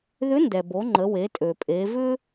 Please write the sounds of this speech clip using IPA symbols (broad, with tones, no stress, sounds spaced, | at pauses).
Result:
ð ʏ˧˥ n d ɛ˩ b o˩˧ ŋ͡ǃ ə˩˧ w e˩˧ tʼ ø˩ pʼ e˩˧ v ʏ˥